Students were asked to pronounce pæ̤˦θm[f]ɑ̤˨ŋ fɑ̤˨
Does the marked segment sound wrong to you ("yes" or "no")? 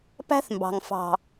yes